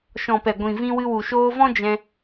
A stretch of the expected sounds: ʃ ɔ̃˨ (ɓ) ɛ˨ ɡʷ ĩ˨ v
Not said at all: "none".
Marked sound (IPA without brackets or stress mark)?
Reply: p